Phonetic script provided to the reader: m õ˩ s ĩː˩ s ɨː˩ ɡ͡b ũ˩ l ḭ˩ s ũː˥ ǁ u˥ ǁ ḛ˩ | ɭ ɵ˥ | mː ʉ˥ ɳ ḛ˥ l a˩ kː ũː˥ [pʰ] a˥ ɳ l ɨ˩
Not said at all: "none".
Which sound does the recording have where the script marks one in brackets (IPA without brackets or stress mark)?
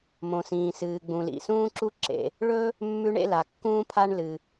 pʰ